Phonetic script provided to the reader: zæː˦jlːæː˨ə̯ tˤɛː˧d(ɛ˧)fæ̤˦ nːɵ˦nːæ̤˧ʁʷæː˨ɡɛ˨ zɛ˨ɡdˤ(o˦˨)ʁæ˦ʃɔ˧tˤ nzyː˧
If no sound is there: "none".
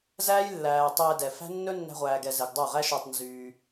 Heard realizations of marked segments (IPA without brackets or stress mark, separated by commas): ɛ˨, o˦˨